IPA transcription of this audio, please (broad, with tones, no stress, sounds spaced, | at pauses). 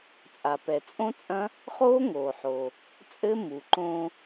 t͡sʼ a˩ p ɛ˩ t͡sʼ õ˦˥ t͡sʼ ɐ̃˦˥ | χ oː˦˥ ŋ oː˩ ħ oː˩ | t͡sʼ ɘ˦˥ m u˩ ǃ õː˧